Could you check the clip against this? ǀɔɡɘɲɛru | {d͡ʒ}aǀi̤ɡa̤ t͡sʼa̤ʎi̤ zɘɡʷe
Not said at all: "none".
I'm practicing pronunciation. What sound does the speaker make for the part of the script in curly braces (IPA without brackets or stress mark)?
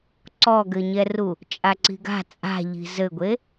t͡ʃʼ